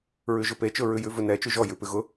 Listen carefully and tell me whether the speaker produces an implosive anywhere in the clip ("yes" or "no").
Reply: no